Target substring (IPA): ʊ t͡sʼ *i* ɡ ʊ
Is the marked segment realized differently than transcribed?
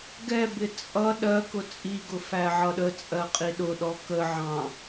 no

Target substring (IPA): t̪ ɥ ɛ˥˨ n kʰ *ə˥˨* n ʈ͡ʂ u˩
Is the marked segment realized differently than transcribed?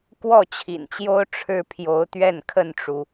no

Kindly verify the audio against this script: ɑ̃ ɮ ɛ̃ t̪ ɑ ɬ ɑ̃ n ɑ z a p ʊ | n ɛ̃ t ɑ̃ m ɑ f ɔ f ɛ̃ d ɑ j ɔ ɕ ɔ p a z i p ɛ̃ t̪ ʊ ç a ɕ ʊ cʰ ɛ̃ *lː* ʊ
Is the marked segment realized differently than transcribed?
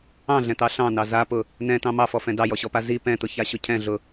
yes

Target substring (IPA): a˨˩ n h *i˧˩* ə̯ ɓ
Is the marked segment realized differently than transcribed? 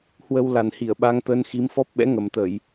no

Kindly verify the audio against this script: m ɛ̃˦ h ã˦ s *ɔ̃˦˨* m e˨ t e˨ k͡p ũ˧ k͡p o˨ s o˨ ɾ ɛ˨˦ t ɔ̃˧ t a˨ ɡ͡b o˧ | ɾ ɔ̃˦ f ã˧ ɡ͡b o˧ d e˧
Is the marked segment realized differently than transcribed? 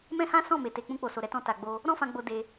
no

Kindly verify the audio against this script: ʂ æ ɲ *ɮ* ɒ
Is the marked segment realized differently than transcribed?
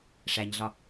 no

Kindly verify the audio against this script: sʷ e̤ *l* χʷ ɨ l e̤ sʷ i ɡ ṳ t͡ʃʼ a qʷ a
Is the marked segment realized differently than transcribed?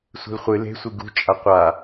no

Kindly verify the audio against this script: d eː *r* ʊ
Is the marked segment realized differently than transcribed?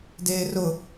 no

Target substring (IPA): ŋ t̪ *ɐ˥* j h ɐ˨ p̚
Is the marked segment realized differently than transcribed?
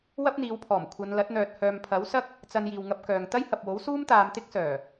no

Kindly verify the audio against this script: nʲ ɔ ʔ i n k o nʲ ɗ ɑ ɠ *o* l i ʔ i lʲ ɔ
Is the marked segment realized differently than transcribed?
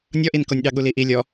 yes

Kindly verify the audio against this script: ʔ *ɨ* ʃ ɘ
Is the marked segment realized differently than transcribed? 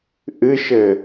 no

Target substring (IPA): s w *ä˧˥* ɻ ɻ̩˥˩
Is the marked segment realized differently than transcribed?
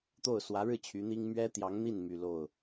no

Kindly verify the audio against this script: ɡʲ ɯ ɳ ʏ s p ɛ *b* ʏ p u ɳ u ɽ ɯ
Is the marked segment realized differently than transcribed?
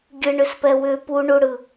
yes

